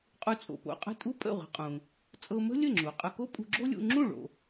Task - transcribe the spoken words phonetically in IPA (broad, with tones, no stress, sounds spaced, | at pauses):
qʼ u˧ t͡sʼ o̰˩ p o̰˧ qʼ ə̤˥˩ tʼ u˥ pʼ ə̰˥˩ ʁʷ ə̤˧ qʼ ũ˩ | t͡sʼ ɤ˧ m ə̤˥ lʲ ə˥˩ ŋ͡ǁ u˩ qʼ ə˧ k o˥ pʼ ṳ˧ ɡ͡ǁ o˥ lʲ ṵ˧ ŋ͡ǁ ũ˥˩ ɭ o̰˩